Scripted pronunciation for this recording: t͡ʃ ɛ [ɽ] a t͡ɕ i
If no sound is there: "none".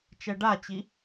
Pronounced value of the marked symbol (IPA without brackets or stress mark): ɖ